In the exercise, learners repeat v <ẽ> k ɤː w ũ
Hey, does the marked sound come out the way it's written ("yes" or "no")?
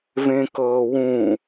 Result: yes